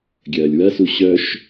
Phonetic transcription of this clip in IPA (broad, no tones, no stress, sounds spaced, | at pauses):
ɡʲ ɐː lʲ w ɐ s u ɕ œ ʃ